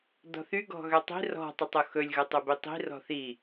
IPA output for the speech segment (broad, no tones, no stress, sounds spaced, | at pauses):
d ɔ̤ θ y ɡ ɔ̤ ɣ ø tˤ i̤ r ɔ̤ tˤ ø tˤ o x ɵ lʲ ɣ ɵ tˤ ɵ b i tˤ i̤ r ɔ̤ θ i